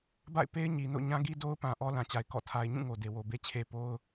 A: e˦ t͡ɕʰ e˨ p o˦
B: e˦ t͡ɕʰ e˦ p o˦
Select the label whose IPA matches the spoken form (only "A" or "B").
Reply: B